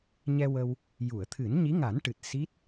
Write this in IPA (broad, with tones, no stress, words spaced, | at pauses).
ɲɛ˧wə˧w | ju˨˩˨ə̯t̪ʰɨ˨˩˦n ɲi˧˥ŋa˨˩˦nʈɨ˨˩t̚ si˦˥t̚